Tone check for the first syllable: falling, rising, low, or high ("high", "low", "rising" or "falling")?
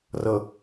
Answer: low